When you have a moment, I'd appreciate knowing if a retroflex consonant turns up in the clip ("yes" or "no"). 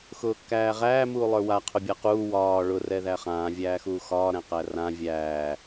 yes